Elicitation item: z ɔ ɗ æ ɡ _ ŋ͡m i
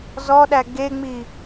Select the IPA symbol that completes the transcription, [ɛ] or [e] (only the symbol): e